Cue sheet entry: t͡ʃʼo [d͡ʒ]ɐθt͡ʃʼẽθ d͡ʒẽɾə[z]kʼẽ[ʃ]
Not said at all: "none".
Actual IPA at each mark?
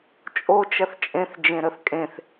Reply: t͡ʃ, θ, θ

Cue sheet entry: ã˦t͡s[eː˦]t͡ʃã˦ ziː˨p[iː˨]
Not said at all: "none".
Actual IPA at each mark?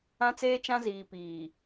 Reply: eː˦, iː˨

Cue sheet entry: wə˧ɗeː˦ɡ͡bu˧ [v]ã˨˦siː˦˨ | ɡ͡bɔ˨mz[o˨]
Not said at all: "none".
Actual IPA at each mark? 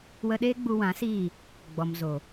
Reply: w, o˨

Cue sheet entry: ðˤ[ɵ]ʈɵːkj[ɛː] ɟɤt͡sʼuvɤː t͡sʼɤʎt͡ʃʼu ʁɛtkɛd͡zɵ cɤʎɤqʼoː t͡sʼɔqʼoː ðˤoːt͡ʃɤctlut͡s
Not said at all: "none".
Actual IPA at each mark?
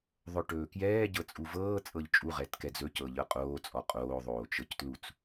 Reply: ɵ, ɛː

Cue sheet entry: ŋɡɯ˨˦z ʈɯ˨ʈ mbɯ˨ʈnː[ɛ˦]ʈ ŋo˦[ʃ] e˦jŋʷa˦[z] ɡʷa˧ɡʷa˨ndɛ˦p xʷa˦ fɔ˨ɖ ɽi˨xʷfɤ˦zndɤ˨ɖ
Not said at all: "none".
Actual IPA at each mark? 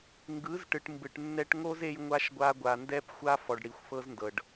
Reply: ɛ˦, z, ʃ

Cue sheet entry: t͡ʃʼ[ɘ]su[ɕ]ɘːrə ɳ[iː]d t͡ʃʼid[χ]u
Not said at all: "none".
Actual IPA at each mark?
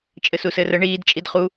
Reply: ɘ, s, iː, χ

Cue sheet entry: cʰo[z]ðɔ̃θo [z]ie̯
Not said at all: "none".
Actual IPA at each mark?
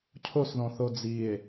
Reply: s, d͡z

